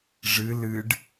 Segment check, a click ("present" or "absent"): absent